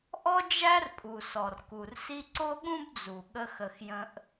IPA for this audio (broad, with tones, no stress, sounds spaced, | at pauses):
ʔ ɔ˦ d͡ʒ æ˦ r pʼ u˨ s ɔ˨ r k u˨ r s i˦ ǀ o˦ ɠ ũ˦ b d͡z u˨ ɠ ə˦ x ə˧ x j ə̃˦ ʔ